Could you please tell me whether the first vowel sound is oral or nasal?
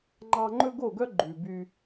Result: oral